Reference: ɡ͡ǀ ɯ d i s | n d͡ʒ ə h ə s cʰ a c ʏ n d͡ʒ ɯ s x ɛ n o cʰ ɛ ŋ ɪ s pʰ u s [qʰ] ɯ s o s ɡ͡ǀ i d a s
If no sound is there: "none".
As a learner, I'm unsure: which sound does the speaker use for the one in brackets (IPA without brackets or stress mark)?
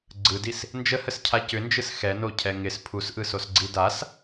ʔ